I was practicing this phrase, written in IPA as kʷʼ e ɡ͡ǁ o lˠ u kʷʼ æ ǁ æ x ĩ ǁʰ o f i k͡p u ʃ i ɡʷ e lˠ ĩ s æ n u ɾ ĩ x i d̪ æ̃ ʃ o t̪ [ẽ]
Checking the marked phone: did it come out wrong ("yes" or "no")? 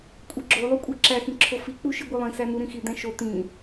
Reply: yes